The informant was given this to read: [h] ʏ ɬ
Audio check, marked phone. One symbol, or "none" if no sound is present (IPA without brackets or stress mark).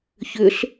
ç